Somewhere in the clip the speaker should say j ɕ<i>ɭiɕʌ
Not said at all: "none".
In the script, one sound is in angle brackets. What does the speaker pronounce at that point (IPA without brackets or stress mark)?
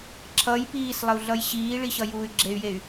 iː